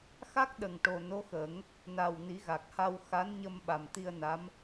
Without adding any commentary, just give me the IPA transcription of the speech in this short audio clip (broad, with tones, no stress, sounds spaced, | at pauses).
x a˦˥ k̚ ɗ ə˨˩ ŋ ʈ o˨˩ n o˧˥ x ə˨˩˦ ŋ | n a˨˩ w n i˨˩˦ ɣ a˨˩ k̚ h a˧ w x a˧˥ n ɲ ə˧ m ɓ a˨˩ m t̪ i˧ ə̯ n a˧˥ m